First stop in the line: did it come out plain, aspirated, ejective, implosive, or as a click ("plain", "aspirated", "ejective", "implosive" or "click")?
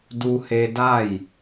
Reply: plain